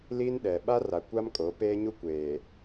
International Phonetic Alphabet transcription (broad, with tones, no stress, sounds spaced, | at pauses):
l iː˦ n ɗ ɛ˨ ɓ a˦ r a˨ kʷ a˦ m kʼ o˨˦ p eː˦ ɲ u˦ kʷ eː˨